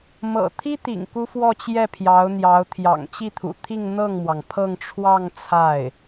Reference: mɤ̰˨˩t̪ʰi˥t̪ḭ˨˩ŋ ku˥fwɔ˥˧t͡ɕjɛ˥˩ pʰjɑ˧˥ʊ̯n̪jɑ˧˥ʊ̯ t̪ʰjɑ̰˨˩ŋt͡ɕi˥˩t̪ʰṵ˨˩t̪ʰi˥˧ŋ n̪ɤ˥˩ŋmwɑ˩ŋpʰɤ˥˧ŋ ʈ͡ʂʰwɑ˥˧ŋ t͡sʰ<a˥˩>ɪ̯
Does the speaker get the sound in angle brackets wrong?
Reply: no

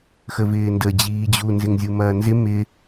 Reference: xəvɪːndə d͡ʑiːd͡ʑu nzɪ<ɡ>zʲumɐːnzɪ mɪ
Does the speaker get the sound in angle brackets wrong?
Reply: yes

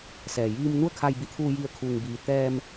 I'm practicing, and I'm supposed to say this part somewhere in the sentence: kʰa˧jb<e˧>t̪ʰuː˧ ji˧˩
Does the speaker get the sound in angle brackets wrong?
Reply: yes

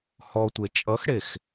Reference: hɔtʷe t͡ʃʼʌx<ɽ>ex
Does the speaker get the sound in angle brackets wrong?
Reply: no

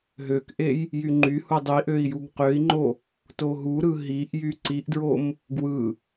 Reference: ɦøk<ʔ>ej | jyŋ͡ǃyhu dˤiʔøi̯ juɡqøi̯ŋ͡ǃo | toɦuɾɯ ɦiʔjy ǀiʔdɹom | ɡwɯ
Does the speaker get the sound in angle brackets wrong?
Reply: no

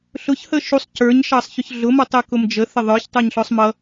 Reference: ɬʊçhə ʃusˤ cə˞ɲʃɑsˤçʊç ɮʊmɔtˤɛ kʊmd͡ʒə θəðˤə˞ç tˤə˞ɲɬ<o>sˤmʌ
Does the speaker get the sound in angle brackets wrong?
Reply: yes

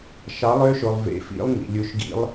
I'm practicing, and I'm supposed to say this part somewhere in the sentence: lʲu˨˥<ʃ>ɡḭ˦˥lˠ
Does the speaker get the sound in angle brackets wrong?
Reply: no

